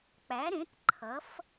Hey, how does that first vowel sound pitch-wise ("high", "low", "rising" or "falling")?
rising